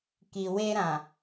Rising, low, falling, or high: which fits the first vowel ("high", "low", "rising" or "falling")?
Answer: low